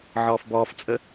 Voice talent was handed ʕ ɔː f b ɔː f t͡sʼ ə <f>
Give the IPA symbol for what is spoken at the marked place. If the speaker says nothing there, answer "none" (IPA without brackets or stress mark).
none